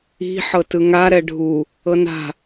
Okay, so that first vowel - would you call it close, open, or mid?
close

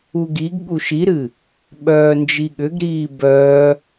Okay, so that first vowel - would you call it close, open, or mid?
close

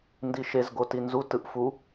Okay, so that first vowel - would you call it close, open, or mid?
close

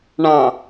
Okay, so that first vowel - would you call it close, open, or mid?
open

